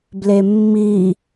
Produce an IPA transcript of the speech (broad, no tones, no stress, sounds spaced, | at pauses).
b l e mː i